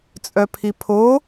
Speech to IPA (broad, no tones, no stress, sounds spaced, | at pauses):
t͡sʼ œ pʰ i pʰ o